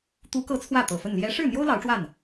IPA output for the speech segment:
t̪u˧˥kɤ˧˥ t͡sʰwä˥˩ t̪ɤ˨˩fə˥˩n ljɛ˧˥ ʂɻ̩˥˩n̪jo˥ʊ̯ lɑ˧˥ʊ̯ʈ͡ʂwa˥˩n

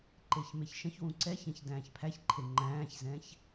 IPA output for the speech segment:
ǃeçmeçʃə̃çwũ ǀɛçɛ̃ç dæ̃ːçpʰæçǃʰe ŋ͡ǃæ̃ːçzɛ̃ç

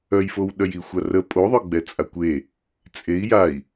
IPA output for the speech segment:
œjfowɗœj ixʷarə pʼoðˤœɡ͡bɛ t͡sʼakʷe | t͡sʼei̯ jai̯

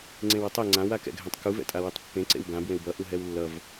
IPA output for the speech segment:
ŋ͡ǀẽwʌtˤɛ ŋ͡ǀãw akɛ̰ɡʱɛ̃tˤkuv ɛ̰tʼawetˤpːẽ ǀḛwɡã bwẽwbʌ ʔuɦɛwlːʌv

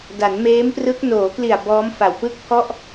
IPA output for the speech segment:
da˩˦nmeː˦˥mprɯ˦˥k̚ noː˩˦kli˨˩a̯ bɔː˦˥mfa˨˩wpɯ˥˩k̚pʰɔ˥˩ʔ

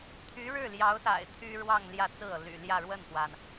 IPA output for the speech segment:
t̪ʰy˧˥ɻɻ̩˥˩ljɑ˧˥ʊ̯sa̰˨˩ɪ̯ t̪ʰy˥ɻwɑ˥˧ŋ ljä˥˧t͡sɹ̩˥˩ɤ˩ ly̰˨˩ljä˥˧ ɻwə˥˩nxwa˩n

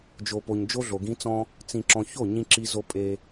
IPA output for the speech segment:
d͡ʒo˨po˨ɲ d͡ʒo˦ɮo˨ɡĩ˦ t͡sɔ̃˦ | t͡sĩ˨ ǁɔ̃˨ço˦˨ ɲĩ˦ǁi˦zo˦ pʼe˦

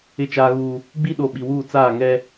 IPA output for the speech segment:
ɪ˦˨t͡ʃaː˦ɣuː˦ | ɡ͡bi˦ɗo˨ ɓi˨wuː˦˨ t͡saː˦˨ŋɛ˦

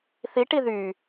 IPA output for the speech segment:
θi ʈiðy

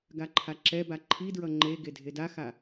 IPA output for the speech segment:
ɡaǃʰaǁɛba ǃʰidɹʌ ŋ͡ǃeɡe dʱedaxa

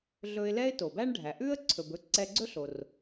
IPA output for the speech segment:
ɮɵ˧ɪ̯lɛ˥ɪ̯ to˩bæ˥ɳɖʱæ˩ ʔʉ˥ə̯ ǀʰɵ˩bɵ˥ ǀɛ˧ɡ͡ǀɵ˥ɬo˩r

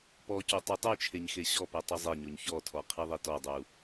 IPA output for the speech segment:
pɔco tˤytˤyt͡ʃʰeɲ xeɕɔpɛ tˤyzˤeɲoɲ çɔtʰɔ qʰiðˤitɔdˤu

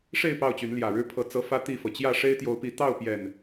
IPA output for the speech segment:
ʂe˥˨ɪ̯ pɑ˥˨ʊ̯t͡ɕy˨˦nljä˨˩ɻɻ̩˦ pʰɤ˨˩t͡sɤ˨˦ fä˦t̪i˥˨fɤ˩ t͡ɕjä˥˨ʂe˦ɪ̯t̪jo˨˦ʊ̯pi˨˦ t̪ɑ˥˨ʊ̯pjɛ˨˩n

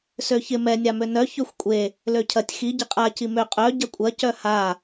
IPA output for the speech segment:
søçɪ mɛ nʲamønœ çøxʷkʷʼe | løcʰɐtʲ xi ɟɪqʼa cimø qʼœ ɟɐkʷʼɐ cœha

